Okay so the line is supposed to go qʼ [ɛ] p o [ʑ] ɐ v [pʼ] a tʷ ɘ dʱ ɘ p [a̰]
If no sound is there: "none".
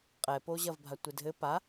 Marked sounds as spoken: ɛ, ʑ, bʱ, a

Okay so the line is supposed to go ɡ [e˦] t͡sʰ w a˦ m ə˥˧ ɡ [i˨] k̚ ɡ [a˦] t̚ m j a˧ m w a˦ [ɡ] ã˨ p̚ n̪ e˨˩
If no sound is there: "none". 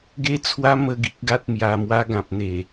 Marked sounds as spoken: e˦, i˦, a˦, ɡ

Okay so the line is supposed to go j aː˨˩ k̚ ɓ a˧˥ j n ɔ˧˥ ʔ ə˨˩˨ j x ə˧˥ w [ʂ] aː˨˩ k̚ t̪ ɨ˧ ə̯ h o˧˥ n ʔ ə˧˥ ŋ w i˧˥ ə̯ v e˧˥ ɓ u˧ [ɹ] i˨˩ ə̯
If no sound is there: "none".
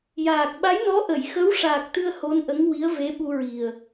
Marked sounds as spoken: ʂ, ɹ

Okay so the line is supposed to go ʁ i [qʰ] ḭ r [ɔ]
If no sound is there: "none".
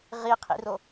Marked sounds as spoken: qʰ, o

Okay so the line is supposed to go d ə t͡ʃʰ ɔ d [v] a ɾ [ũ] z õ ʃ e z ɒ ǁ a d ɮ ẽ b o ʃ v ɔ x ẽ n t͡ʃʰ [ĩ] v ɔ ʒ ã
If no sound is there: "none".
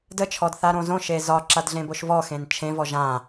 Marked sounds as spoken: θ, õ, ẽ

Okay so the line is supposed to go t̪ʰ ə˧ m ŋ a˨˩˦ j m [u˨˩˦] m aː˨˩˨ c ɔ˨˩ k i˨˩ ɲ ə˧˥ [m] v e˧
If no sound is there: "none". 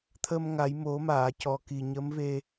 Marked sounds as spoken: o˨˩˦, m

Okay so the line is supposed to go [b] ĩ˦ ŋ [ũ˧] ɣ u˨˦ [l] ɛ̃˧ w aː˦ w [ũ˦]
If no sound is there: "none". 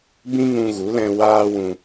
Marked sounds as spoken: b, ũ˧, l, ũ˧

